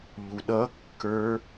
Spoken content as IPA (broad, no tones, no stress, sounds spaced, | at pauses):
ʎ u ɗ ʌ kː ə˞